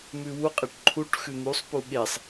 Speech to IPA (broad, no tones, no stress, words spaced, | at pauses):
mʉwuqʼeʈ ǃʰuʈ xʉn̪usˤpu ɠesˤ